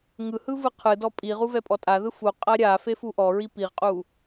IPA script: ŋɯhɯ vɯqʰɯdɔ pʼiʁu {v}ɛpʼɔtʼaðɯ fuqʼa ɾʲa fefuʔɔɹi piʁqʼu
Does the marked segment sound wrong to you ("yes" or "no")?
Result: no